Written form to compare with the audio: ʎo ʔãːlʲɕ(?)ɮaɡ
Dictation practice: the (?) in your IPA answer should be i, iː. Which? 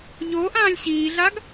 iː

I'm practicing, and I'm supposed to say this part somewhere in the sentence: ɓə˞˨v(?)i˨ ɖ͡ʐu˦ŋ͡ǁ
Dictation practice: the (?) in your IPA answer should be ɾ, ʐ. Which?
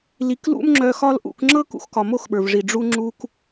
ʐ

